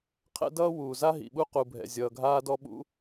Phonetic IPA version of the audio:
qʰ ɛ̰˥ d ʌː˥ w uː˩ z a˥ ɦ ḭ˩ ɓ u˥ q u˩ bʱ ɛ̰˩ zʲ ʌː˩ ɡʱ aː˥ d ɔ˥ ɓ ṵ˥

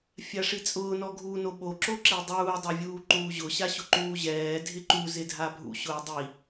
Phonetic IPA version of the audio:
fʲ a ʂ i t͡sʼ ʊː n ɔ ɡʱ u n o ɓ o ǁ o ǁ i dˤ uː dˤ o vʲ uː ǃ uː ʑ ʊ ɕ a ɕ ʊ ǃ uː ʑ ɛː dʱ ɪ ǃ u z ɪ dʱ a bʱ ṵ ɕ ʊː dˤ i

